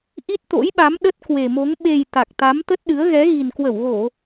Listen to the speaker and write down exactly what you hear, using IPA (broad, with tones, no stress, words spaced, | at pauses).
ʔi˦˥t̚t̪o̰˧˥jɓa˨˦m ɗə˦˥t̚kwe˨˩mo˨˦ŋ ɓe˨˩j t̪a˨˩k̚t̪a˨˦m t̪ə˦˥t̚ɗɨ˨˦ə̯ ɣɛ˨˦ɣi˨˩nkwə˧˩wɣo˧˩˨